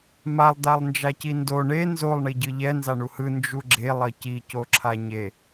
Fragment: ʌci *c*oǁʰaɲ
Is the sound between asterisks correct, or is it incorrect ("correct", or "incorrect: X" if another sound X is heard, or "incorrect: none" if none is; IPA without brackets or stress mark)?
correct